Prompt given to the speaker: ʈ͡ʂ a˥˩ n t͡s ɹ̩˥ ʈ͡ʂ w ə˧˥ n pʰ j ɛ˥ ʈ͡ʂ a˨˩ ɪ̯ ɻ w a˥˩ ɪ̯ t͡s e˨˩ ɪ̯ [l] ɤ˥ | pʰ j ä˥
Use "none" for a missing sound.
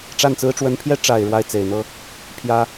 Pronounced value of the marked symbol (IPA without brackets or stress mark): n̪